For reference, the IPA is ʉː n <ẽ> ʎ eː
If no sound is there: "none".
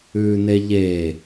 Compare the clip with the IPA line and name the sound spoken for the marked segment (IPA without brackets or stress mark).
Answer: e